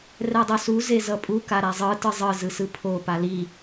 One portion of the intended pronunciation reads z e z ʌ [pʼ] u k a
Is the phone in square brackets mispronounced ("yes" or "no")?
no